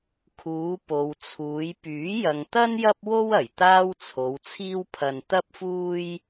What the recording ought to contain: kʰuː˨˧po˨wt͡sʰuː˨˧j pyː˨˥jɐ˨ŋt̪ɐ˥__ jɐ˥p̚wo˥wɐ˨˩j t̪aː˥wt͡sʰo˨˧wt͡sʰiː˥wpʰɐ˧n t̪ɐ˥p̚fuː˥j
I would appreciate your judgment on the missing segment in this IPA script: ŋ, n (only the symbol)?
n